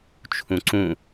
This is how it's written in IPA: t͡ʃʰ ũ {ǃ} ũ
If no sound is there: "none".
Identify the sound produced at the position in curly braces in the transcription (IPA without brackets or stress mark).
ǀ